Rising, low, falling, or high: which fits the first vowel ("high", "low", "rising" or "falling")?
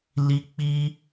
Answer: high